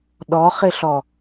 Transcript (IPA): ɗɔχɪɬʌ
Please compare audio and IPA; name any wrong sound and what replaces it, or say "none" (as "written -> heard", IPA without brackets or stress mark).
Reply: ʌ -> ɔ